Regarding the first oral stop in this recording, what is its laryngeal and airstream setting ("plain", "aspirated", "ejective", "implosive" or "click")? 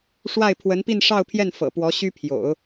aspirated